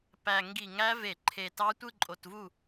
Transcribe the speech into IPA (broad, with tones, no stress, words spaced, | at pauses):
pæ˨˩ ŋɡi˧˩˧ŋæ˦˥ ve˧˩˧ǃʰe˨˩tɑ˦˥ tʷɯ˥˧ǃʼo˨˩tvu˥˩